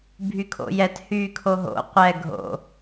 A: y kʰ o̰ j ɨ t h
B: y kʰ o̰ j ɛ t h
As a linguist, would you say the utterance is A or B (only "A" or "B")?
B